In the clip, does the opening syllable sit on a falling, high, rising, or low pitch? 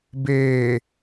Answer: low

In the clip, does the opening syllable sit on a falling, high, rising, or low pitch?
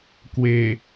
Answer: low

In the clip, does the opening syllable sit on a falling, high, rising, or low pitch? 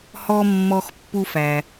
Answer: high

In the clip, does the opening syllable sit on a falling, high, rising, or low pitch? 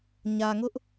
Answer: low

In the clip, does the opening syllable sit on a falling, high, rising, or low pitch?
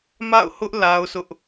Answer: falling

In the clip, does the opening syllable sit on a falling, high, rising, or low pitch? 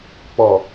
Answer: low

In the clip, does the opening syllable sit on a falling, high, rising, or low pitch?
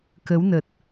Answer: rising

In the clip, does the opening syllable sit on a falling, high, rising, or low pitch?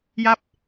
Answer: falling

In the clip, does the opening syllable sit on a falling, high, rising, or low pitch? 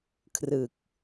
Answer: low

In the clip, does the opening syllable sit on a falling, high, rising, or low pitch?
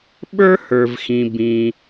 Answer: high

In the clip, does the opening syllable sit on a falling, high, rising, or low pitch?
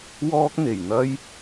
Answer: high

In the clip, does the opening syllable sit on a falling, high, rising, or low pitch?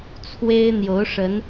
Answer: high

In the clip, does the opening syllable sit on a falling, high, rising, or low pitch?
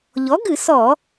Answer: rising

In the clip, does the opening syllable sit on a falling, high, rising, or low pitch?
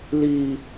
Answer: high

